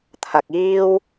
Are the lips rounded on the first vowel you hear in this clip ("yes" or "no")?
no